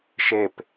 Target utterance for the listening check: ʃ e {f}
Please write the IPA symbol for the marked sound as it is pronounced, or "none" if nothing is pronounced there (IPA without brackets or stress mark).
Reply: p